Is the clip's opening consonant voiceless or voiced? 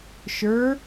voiceless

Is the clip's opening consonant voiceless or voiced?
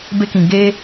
voiced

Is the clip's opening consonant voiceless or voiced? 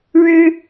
voiced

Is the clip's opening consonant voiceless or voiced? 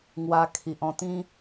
voiced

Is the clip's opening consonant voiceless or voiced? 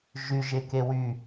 voiced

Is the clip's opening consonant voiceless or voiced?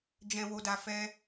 voiced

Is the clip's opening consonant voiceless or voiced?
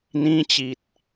voiced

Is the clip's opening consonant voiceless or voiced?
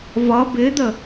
voiced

